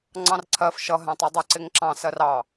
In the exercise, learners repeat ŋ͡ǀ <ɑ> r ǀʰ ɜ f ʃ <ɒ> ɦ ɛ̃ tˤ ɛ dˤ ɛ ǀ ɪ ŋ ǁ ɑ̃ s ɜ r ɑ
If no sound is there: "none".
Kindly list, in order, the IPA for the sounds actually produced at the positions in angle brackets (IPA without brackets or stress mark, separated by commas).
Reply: ɑ̃, ʌ